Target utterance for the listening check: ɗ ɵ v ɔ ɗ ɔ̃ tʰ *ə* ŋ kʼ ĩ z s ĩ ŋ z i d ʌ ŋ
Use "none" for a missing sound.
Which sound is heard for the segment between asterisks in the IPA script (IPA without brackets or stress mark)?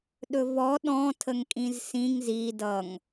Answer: ə